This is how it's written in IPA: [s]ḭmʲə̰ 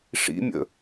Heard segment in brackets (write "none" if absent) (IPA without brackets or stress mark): ʂ